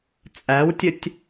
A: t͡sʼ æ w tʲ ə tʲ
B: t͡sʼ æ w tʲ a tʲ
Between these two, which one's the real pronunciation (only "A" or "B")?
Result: A